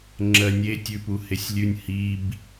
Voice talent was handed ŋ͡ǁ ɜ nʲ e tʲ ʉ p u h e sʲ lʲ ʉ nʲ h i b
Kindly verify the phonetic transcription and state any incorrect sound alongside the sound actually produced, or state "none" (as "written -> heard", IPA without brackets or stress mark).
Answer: none